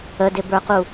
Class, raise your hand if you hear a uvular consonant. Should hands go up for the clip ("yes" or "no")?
yes